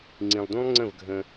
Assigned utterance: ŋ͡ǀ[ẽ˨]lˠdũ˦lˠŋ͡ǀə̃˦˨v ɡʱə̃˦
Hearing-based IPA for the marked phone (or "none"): ĩ˨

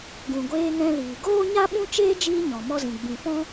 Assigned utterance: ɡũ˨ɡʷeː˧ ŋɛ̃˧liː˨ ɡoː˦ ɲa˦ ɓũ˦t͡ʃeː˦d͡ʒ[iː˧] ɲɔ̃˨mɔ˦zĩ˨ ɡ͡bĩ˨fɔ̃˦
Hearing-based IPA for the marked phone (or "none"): iː˧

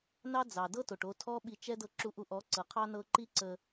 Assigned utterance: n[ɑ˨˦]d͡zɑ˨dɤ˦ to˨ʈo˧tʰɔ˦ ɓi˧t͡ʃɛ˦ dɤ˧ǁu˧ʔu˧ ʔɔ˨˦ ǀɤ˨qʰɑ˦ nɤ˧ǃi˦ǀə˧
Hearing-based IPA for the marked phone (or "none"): ɑ˦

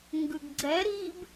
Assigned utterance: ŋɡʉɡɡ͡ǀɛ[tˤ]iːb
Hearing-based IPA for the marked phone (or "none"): ɾ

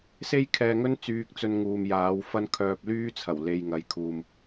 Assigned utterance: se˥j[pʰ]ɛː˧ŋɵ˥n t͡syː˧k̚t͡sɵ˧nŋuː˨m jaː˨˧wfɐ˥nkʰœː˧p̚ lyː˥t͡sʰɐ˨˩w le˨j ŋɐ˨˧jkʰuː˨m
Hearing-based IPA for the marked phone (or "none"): kʰ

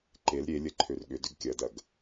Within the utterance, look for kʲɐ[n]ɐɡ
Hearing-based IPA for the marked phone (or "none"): d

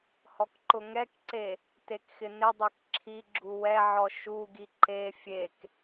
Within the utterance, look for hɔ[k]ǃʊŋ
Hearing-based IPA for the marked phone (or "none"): k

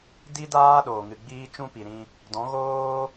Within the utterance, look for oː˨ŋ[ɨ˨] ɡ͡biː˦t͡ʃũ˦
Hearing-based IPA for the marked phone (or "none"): ɨ˨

